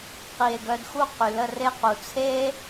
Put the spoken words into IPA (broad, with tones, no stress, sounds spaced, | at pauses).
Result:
q i˨ e̯ ɡ œ˧ d x u˦˨ q y˨ l ə˦˨ r e˦ q u˨ t͡sʰ e˦